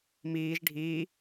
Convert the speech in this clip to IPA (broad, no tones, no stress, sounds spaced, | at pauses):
m iː ʒ ɖʱ iː